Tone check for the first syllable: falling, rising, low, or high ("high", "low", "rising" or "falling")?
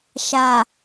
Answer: low